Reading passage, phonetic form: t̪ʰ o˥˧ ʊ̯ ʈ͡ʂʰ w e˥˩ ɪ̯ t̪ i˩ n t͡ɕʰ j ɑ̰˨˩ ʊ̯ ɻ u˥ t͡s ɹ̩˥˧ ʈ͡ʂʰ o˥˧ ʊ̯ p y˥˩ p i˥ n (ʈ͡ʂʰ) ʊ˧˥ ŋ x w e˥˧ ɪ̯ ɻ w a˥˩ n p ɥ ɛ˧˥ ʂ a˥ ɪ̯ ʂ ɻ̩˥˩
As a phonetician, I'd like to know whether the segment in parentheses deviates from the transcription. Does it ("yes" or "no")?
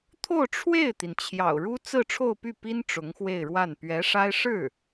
yes